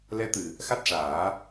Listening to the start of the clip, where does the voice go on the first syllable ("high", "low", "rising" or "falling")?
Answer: rising